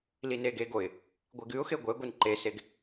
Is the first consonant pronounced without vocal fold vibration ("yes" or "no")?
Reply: no